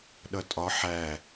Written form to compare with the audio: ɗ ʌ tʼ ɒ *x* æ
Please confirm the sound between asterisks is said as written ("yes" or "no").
no